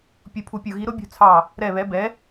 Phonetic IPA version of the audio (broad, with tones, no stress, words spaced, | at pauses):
pʲu˦˨pʰu˦˨pʲu˦˨ ɣi˨˥ɾʊ˨˥bʲṳ˦˨ t͡sʰɑ˦˨ | ɾɛ˦˨βɛ˨˥ bɛ˨˥